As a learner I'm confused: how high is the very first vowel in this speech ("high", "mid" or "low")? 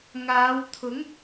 low